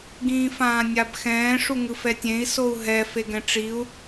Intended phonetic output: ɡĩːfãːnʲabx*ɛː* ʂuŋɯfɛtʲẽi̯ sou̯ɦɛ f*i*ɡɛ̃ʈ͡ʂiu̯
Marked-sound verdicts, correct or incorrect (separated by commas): incorrect, incorrect